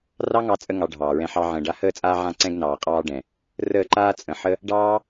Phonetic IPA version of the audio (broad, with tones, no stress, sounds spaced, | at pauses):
r ɑ˦ ŋ ɑ˧ t͡sʼ ə˧ ŋ ɑ˧ ɖʱ ɑː˨ ɹ ɛ̃˧ ħ ɑ˧ ʕ ə̃ː˨ ɖ a˧ h əː˦˨ t͡sʼ aː˧ ʕ ã˧ ǀ ɛ̃˧ ɡ n ɑː˨ qʼ ɑː˧ ɖ ɛ̃˨ | r əː˦˨ ǃ aː˦ t͡sʼ ə̃˨ ħ ə˦ | ɖ ɑː˦